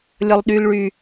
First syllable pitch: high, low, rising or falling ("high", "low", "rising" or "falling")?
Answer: high